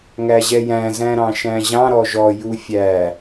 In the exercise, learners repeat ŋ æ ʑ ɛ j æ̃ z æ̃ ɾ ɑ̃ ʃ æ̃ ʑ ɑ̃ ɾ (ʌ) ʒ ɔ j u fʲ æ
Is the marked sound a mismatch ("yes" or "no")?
yes